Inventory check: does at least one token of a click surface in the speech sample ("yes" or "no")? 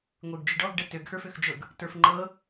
yes